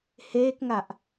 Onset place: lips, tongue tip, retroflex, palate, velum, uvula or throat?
throat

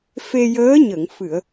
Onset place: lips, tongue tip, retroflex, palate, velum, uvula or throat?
lips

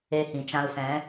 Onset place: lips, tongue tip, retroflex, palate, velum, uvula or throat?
throat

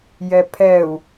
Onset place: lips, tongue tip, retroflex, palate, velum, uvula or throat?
palate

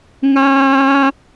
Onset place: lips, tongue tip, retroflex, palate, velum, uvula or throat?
velum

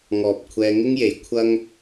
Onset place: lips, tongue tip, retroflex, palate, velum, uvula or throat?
velum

